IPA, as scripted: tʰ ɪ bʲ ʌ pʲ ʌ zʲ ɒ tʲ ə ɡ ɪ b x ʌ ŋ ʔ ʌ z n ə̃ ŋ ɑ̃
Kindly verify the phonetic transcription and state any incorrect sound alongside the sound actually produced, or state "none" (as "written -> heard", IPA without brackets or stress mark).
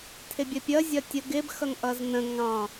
none